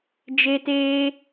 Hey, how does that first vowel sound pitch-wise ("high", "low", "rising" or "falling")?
high